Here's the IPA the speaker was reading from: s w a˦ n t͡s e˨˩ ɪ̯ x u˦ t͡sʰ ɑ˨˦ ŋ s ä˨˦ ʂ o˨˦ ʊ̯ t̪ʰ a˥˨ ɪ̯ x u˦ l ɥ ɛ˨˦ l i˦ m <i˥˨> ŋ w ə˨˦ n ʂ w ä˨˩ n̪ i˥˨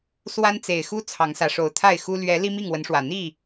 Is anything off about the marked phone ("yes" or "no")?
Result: no